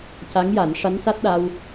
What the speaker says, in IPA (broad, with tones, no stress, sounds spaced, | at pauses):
c a˧˥ ŋ j a˨˩˦ n ʂ a˧˥ n s a˦˥ t̚ ɗ a˧ w